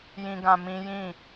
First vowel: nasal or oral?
nasal